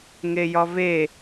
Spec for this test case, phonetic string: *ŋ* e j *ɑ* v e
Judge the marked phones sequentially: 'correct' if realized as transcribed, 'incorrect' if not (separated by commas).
correct, incorrect